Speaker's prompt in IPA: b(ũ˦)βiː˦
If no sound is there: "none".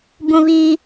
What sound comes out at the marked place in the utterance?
ũ˦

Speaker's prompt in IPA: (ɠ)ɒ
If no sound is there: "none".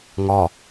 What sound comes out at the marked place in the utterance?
ŋ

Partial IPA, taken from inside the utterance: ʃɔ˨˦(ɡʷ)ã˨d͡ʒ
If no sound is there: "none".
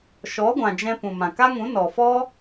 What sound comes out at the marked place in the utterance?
ɡʷ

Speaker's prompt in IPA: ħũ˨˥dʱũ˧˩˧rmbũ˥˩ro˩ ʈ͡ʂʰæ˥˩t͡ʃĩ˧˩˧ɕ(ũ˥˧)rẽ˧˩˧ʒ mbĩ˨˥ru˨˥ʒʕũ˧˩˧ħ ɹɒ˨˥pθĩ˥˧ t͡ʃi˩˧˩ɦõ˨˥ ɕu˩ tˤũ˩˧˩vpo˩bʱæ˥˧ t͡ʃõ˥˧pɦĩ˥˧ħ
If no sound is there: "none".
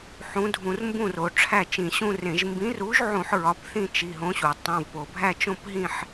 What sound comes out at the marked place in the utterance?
ũ˥˧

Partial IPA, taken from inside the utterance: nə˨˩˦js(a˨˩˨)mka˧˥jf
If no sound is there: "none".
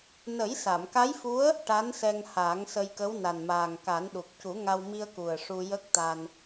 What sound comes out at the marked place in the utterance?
a˨˩˨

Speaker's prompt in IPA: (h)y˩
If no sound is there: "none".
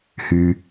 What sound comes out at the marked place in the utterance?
h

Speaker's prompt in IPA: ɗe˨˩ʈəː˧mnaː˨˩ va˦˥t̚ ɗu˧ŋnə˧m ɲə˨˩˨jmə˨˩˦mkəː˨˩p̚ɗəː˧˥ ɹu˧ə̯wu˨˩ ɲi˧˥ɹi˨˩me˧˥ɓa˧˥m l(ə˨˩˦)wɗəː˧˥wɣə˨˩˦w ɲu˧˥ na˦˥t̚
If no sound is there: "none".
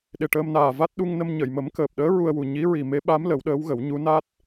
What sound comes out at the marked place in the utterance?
ə˨˩˦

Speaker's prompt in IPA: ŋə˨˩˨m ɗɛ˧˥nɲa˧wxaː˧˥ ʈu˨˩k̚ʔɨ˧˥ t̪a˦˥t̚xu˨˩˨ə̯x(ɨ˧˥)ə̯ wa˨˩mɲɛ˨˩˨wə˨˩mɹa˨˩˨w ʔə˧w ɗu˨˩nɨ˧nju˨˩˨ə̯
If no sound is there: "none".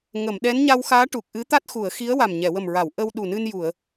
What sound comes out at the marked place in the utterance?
i˧˥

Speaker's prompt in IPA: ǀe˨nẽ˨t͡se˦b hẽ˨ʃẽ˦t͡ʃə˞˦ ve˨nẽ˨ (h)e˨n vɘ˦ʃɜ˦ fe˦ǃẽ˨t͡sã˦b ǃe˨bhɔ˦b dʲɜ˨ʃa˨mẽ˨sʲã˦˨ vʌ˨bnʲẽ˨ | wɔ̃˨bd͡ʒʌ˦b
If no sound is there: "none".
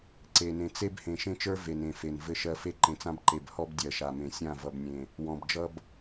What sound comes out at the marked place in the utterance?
f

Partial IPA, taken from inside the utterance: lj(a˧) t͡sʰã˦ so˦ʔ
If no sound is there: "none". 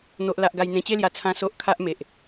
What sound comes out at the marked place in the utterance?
a˧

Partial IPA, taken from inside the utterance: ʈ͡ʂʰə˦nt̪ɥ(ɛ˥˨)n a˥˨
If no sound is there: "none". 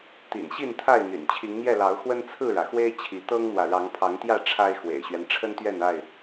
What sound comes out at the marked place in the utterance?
ɛ˥˨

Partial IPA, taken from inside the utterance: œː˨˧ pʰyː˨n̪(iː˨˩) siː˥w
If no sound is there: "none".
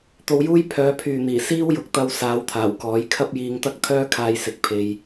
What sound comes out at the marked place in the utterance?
iː˨˩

